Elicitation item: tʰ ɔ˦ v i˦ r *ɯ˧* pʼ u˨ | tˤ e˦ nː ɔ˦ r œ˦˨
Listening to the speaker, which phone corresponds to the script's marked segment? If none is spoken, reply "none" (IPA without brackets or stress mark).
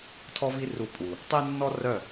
u˧